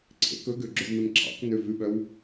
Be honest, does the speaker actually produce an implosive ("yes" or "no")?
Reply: yes